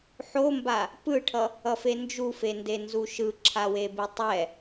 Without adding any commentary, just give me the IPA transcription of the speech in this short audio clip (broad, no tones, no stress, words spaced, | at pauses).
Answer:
ħomba | pɯʈʰʌ | ʌfend͡ʒufe ndenzuʃɯ ǁʰawebitˤɛ